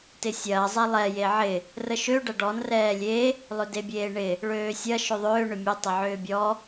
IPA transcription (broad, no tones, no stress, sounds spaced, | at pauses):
t ɪ sʲ ɐː zˤ ɛ lˠ ɛ j e ʕ ɪ | r ə ʃ ø ɖ ɐ ɖ ɔ n r ɛː lʲ e | lˠ ʏ d e bʲ eː ɳ ɪ | ɭ øː sʲ ɐ ʃ ʏ ðˤ ʏː ɳ ʏ mʲ ø tˤ ɪ ʕ ʏː bʲ ɔ